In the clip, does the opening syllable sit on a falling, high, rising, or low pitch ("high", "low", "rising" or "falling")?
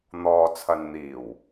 low